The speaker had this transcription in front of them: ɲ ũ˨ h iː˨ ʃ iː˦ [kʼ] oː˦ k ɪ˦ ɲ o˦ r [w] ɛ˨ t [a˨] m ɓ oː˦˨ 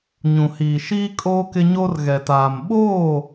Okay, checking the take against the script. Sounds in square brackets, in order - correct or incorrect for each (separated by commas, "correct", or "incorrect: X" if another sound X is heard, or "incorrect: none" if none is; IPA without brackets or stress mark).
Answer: correct, incorrect: ɣ, incorrect: aː˨